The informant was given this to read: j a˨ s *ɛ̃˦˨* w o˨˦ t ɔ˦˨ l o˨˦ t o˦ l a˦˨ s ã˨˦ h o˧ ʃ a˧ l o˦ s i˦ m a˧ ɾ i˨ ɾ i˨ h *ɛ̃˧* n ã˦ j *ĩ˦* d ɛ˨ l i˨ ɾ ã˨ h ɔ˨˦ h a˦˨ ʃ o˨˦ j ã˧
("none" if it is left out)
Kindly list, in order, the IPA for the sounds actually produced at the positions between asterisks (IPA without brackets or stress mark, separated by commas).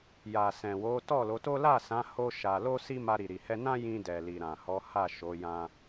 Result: ɛ̃˨, ɛ˧, ĩ˧